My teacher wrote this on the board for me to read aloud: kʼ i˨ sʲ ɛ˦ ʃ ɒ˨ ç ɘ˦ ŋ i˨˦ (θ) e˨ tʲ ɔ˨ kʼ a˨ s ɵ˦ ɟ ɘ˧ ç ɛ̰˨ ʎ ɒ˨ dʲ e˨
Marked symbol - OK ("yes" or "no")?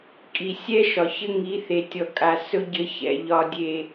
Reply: yes